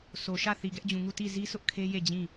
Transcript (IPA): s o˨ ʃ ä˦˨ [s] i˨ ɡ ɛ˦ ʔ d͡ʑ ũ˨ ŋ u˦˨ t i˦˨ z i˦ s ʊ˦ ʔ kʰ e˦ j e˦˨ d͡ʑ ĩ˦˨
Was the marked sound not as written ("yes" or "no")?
yes